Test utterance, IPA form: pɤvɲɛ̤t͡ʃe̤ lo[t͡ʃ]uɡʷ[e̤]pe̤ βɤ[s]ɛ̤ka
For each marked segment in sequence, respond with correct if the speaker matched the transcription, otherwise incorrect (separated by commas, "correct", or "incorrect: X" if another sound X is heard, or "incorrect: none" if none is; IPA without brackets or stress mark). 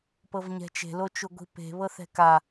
correct, incorrect: i̤, incorrect: θ